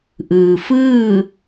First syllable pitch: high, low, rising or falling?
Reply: low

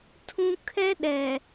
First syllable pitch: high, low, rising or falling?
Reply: high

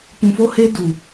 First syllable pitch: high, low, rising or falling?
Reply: low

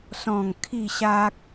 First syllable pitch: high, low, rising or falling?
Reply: falling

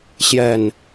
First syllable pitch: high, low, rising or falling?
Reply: low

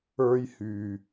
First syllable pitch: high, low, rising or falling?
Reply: high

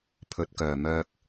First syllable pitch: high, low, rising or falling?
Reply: low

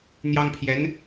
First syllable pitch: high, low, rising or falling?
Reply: high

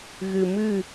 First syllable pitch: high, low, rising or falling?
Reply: low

